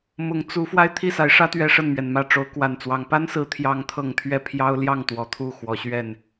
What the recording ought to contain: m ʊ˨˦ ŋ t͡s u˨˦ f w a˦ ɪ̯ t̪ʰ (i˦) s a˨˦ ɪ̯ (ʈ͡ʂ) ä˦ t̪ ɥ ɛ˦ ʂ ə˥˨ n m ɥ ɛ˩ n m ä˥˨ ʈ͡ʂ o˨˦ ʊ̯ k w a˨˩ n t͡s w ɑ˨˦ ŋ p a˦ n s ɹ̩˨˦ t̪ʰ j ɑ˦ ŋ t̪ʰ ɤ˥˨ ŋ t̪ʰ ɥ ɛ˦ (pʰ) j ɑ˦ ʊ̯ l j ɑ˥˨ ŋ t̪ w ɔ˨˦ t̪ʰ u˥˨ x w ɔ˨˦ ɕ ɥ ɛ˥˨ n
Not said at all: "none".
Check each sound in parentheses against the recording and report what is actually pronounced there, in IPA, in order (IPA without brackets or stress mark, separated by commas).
i˥˨, ʂ, pʰ